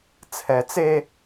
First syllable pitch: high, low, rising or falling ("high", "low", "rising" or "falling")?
low